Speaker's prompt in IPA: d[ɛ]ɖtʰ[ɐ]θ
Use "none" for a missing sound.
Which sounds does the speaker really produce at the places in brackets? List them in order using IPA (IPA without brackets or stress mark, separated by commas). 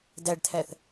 æ, æ